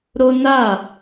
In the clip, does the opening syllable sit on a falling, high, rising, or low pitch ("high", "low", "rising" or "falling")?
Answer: high